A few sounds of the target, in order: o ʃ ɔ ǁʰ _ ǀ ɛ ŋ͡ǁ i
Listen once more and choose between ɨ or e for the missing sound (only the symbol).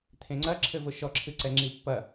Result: ɨ